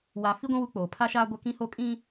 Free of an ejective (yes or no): no